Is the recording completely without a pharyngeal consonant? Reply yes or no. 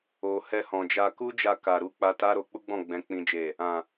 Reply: yes